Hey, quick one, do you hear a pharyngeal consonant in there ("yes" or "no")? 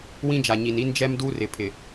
no